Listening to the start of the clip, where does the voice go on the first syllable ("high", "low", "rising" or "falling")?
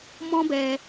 high